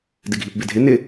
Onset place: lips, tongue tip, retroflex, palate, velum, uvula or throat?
tongue tip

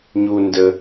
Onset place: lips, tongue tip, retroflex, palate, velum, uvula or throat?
palate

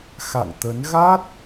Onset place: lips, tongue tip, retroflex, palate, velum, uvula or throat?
velum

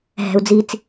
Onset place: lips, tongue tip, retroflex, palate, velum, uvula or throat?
throat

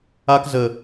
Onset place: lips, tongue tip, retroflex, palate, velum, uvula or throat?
velum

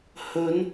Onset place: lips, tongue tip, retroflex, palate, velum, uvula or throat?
throat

